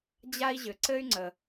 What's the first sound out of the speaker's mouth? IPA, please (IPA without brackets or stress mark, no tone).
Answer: d͡ʑ